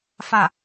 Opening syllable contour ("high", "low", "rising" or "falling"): falling